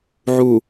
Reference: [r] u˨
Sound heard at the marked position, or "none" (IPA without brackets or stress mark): ʕ